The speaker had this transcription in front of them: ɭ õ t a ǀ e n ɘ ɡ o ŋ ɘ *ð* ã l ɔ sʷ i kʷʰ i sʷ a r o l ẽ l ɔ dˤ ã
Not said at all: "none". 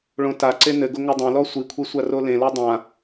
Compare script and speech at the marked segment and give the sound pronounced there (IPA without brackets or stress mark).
dˤ